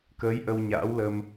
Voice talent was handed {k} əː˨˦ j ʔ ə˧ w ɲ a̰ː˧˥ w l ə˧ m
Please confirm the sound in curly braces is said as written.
yes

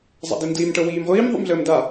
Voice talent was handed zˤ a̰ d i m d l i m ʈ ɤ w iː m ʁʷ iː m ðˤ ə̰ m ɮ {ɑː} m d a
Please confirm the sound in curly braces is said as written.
no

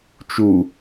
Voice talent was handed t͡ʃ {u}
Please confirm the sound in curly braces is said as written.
yes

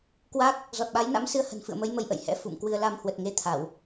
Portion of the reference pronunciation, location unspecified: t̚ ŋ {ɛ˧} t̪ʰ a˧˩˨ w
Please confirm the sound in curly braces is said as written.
no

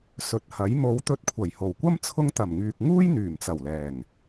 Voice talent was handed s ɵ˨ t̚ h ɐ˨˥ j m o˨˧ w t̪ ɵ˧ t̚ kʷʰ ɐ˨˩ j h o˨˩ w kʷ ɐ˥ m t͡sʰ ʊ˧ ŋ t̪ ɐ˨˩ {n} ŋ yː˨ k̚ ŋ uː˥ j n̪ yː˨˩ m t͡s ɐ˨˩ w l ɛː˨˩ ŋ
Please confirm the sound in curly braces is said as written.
no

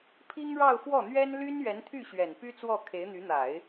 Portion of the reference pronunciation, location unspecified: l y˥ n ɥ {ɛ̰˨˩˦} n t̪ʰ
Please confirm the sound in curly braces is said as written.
no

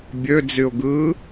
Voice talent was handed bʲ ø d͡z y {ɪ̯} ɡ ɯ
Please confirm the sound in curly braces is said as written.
no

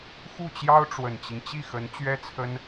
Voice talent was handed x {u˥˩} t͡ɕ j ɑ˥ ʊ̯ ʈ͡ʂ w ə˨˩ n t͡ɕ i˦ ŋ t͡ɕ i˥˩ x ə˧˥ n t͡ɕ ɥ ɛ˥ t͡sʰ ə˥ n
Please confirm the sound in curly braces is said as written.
yes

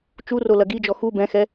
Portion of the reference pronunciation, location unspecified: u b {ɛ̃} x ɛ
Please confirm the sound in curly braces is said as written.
yes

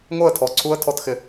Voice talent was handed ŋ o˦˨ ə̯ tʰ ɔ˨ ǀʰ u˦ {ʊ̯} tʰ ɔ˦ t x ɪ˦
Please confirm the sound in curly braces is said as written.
no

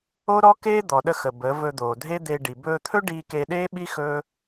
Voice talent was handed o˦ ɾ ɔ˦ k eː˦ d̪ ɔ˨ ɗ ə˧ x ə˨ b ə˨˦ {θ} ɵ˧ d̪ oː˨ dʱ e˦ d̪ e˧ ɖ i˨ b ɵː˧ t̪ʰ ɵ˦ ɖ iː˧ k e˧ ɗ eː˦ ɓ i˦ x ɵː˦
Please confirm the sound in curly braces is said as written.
no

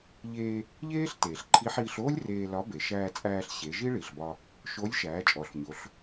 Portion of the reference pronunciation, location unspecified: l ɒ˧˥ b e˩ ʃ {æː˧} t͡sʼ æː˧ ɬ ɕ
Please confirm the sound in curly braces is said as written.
yes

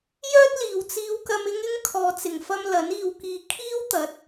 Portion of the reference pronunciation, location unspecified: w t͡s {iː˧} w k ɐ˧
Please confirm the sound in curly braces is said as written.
yes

